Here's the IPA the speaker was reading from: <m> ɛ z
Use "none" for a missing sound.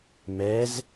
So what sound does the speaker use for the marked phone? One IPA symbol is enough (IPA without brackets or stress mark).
m